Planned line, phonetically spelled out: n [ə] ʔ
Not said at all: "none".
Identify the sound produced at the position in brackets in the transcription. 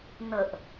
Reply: ə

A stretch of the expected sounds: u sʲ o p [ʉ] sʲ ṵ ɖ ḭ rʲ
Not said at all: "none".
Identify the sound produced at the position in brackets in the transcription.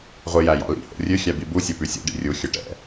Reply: ʉ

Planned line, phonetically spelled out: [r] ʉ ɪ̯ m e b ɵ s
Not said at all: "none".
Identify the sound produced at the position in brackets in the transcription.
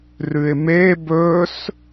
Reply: r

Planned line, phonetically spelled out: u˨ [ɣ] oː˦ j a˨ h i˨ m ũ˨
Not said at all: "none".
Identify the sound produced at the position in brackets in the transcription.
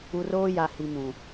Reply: r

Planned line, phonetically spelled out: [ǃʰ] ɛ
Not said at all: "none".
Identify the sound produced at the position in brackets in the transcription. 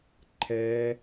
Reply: ǃʰ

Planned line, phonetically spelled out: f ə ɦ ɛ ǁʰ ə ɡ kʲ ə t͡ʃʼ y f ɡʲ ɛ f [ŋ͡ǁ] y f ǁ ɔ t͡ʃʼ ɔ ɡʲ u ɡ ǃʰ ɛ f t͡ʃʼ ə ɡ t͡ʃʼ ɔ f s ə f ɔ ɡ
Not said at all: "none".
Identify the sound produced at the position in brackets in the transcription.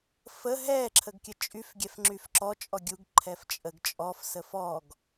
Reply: ŋ͡ǁ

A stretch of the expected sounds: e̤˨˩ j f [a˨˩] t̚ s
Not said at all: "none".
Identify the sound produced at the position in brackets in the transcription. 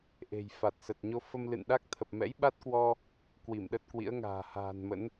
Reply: a˨˩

